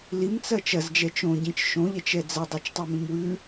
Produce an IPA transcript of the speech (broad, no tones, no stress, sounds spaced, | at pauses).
l i m t͡s ɐ t͡ʃ ɐ z d͡ʒ ɛ t͡ʃ õ ɟ ĩ t͡ʃ ʃ õ ʎ ɛ t͡ʃ ɛ d͡z ɐ dˤ o t͡ʃ tˤ ɛ m ĩ m w ʉ